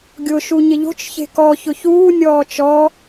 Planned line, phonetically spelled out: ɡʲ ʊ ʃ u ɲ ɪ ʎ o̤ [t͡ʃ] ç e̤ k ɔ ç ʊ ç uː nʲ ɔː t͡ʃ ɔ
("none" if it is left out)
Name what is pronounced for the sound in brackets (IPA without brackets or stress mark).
t͡ʃ